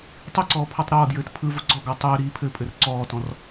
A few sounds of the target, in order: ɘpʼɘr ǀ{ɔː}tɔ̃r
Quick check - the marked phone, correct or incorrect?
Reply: correct